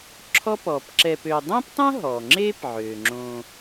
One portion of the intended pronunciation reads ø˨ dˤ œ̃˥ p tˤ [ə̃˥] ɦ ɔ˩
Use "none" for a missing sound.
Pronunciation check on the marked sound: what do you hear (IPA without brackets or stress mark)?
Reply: œ̃˥